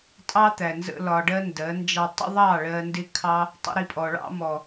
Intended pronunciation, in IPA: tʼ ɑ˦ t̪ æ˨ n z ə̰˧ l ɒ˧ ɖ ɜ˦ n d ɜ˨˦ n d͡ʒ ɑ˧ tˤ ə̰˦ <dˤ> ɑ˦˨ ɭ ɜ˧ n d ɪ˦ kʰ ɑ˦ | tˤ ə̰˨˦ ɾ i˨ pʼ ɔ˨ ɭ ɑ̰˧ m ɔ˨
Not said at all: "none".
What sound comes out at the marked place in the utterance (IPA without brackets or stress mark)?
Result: ðˤ